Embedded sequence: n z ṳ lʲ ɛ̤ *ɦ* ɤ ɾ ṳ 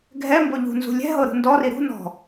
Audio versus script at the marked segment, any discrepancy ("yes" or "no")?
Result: no